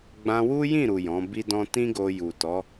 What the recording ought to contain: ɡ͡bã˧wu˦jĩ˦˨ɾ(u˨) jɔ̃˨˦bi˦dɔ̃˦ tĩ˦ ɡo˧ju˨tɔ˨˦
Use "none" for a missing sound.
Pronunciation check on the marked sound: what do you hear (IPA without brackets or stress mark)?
u˨